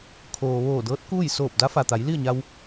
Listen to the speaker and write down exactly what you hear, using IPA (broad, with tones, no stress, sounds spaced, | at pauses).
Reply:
kʰ oː˩ ʋ oː˧˩ d ɤː˧˥ t̚ k uː˥˨ j s oː˧˩ p̚ d a˧˥ f a˩ t̪ a˩˧ j l i˥˨ ə̯ ɲ a˧ w